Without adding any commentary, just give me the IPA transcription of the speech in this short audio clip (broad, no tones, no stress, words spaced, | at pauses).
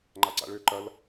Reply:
ŋ͡ǃaǀa̰ɭø ǃɐl